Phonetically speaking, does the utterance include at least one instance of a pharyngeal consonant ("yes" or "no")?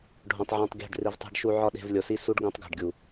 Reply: yes